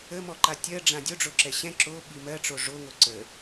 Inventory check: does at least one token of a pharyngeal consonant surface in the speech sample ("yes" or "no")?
no